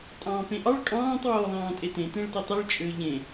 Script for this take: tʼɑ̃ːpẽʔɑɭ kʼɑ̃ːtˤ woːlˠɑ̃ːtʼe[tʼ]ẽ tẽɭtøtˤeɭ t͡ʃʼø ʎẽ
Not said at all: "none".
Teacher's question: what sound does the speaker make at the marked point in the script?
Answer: t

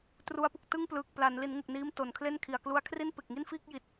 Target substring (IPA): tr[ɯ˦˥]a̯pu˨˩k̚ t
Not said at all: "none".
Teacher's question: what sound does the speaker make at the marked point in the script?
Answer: u˦˥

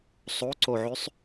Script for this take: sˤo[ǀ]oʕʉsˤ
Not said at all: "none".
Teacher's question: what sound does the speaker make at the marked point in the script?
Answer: ǀ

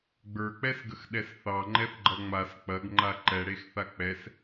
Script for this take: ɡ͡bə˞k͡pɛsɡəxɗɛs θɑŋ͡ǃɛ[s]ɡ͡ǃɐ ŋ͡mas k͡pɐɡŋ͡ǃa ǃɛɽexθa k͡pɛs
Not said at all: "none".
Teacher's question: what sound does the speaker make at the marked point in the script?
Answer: θ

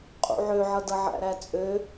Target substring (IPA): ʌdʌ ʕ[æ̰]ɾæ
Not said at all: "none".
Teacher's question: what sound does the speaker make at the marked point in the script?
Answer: æ̰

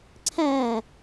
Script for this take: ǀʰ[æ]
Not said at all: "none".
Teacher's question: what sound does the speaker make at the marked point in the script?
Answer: æ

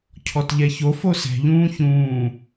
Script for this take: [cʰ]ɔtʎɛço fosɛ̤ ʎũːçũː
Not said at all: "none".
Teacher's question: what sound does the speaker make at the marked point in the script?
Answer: cʰ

